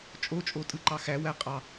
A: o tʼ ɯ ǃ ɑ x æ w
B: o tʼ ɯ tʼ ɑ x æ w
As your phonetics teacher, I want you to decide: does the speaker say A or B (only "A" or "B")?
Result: A